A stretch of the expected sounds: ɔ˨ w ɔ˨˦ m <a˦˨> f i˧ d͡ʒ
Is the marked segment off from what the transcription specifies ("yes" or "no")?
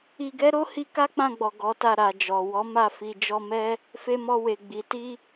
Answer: no